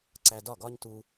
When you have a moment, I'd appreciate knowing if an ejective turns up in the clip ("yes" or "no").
no